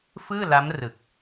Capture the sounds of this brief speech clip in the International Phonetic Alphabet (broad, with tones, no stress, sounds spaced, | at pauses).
f ɯː˥˩ l a˦˥ m r ɯ˨˩ k̚